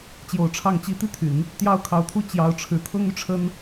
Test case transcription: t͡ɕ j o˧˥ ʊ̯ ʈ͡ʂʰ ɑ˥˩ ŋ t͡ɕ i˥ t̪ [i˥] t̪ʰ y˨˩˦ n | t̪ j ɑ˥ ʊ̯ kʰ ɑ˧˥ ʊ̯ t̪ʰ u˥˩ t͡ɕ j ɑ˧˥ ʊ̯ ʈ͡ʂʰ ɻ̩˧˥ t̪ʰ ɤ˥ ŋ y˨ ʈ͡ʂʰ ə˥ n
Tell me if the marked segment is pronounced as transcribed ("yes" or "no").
no